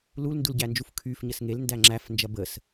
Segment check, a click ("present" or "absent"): present